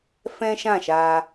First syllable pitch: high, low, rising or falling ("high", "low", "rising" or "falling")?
high